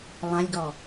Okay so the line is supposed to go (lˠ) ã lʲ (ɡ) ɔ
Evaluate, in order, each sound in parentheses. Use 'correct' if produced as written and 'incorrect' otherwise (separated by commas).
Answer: correct, correct